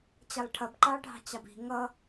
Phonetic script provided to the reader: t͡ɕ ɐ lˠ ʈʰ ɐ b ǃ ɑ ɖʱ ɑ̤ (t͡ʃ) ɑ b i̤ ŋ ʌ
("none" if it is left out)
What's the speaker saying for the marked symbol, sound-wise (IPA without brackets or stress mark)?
t͡ɕ